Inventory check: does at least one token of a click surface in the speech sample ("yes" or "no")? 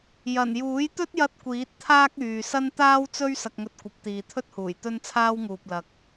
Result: no